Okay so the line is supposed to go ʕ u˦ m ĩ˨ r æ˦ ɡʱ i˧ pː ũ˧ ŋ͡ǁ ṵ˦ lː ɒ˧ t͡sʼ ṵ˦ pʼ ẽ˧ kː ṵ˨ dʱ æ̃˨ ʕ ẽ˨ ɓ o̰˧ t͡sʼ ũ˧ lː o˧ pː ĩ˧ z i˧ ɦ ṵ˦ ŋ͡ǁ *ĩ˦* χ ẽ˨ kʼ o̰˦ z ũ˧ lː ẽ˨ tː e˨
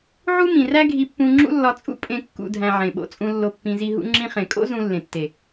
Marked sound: incorrect: ĩ˧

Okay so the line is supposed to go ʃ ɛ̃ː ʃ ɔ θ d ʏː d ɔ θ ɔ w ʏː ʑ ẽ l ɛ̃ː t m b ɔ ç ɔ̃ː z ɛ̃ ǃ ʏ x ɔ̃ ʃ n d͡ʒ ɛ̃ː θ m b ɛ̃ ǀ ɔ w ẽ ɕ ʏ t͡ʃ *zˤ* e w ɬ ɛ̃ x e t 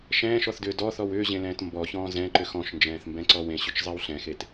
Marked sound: correct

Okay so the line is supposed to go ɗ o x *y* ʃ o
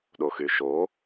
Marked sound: correct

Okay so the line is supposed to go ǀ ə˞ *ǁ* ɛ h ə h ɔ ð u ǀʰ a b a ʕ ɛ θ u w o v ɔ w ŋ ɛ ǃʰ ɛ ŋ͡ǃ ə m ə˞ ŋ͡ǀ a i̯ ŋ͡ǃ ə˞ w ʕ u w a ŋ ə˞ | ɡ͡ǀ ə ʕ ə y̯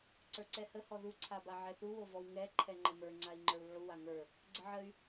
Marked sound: incorrect: ǀ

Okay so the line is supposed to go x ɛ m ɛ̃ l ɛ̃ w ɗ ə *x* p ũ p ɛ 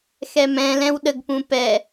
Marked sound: incorrect: ɡ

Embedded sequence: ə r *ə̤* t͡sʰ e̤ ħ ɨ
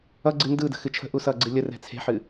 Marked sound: incorrect: ɛ̤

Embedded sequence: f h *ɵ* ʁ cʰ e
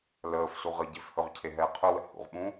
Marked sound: correct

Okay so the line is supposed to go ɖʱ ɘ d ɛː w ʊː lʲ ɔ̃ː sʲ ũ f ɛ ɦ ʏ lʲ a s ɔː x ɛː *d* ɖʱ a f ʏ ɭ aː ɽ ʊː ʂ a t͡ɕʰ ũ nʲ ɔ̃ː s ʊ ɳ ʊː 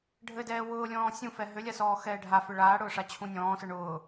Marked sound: incorrect: none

